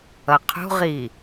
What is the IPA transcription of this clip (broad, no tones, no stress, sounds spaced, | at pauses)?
ʌ qʰ ṳ ʁ i